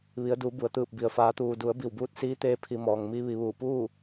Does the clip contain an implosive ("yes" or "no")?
no